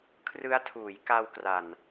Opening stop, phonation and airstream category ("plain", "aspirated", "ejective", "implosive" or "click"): aspirated